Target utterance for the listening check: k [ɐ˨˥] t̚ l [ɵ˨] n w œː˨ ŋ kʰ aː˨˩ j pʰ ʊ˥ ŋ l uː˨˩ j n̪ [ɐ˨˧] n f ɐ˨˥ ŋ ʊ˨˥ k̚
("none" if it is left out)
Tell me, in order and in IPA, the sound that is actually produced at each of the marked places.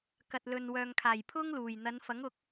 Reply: ɐ˨, ɵ˨, ɐ˨˧

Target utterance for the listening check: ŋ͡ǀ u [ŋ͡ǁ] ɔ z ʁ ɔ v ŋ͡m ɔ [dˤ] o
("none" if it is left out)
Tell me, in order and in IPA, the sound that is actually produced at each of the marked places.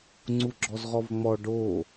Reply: ɡ͡ǁ, ɖ

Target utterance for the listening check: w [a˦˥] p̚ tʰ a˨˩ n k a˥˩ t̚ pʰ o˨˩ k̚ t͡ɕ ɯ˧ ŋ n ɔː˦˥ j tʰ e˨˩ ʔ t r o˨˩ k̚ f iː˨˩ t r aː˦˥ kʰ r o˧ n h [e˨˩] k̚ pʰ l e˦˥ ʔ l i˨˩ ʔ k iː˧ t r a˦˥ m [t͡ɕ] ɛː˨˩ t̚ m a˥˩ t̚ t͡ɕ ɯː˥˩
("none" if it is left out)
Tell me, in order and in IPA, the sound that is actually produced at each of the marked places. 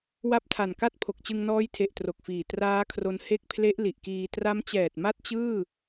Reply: a˦˥, e˦˥, t͡ɕ

